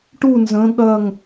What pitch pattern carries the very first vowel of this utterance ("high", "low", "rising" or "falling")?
falling